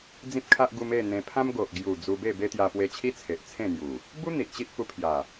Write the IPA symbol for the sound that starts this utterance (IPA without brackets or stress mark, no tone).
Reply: d͡z